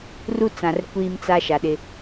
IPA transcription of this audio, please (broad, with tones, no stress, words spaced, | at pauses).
ru˦t͡sã˨r kʷiː˦mt͡sa˦ ʃa˨ɗɪ˦